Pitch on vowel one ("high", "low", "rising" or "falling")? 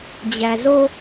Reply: low